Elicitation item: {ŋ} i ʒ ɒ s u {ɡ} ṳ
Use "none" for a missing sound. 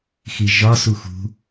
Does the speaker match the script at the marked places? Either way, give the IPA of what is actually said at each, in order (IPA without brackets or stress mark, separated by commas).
x, x